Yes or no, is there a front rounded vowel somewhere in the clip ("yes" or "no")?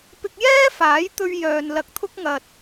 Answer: yes